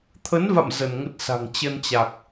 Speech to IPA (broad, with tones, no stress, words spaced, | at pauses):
t̪ʰə˨˦nva̰˧˨m zə˧˩nŋə˦˥t̚sa̤˨˩ŋ t͡ɕə˧nt͡ɕa˨˩k̚